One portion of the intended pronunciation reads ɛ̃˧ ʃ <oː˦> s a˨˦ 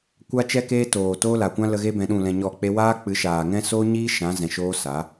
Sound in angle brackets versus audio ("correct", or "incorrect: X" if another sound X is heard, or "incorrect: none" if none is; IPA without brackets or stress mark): correct